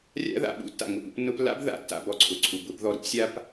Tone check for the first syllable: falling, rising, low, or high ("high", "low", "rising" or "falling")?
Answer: high